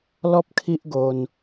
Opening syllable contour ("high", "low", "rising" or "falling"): high